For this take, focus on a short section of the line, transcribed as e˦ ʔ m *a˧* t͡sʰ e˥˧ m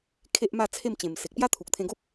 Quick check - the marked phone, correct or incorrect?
incorrect